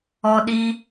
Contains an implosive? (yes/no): yes